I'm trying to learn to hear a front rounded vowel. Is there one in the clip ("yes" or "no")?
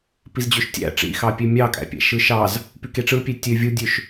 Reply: yes